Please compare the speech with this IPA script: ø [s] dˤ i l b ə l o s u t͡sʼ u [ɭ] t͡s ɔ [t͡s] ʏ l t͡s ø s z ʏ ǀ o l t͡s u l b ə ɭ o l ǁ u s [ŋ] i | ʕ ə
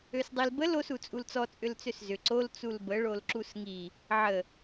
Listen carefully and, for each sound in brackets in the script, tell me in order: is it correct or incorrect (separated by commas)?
correct, incorrect, incorrect, correct